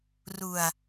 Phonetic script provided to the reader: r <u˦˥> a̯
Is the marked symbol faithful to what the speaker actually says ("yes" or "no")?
no